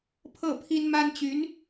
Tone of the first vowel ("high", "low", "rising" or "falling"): falling